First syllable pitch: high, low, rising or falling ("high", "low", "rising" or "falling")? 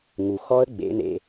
low